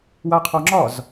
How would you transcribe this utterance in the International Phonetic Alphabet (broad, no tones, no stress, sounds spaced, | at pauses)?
w a qʰ ɔ ŋ͡ǁ ɒ z